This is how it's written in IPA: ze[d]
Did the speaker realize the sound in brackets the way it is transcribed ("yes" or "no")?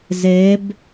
no